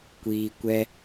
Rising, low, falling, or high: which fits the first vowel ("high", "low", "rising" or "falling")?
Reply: low